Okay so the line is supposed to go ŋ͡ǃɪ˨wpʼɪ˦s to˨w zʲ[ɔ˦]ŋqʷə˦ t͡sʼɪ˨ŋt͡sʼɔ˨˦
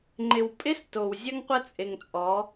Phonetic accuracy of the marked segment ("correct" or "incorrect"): incorrect